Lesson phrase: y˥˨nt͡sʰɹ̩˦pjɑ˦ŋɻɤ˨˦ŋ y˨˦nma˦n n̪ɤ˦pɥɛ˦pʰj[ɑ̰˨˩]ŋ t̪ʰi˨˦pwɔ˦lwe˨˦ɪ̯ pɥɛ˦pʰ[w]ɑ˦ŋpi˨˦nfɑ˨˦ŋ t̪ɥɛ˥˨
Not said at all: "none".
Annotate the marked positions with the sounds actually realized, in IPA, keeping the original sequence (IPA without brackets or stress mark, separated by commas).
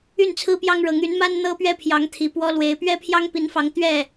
ɑ˨˦, j